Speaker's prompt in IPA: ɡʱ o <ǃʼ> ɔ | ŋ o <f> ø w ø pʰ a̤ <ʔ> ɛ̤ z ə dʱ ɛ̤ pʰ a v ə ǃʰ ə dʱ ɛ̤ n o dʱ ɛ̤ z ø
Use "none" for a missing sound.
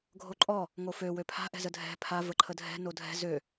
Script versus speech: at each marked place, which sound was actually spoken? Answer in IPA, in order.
ǃʼ, f, ʔ

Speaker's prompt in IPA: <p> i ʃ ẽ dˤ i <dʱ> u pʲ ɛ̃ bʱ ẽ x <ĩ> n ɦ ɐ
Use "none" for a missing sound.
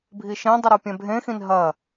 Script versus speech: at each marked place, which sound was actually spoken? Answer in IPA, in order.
bʱ, ɾ, ĩ

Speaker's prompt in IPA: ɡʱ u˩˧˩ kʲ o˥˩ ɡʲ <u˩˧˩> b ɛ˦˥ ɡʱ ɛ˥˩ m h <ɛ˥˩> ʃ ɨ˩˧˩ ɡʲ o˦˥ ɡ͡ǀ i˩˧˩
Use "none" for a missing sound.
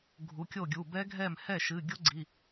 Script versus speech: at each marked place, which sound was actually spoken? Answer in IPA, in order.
u˩˧˩, ɛ˥˩

